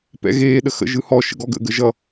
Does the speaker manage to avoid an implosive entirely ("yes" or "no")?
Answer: no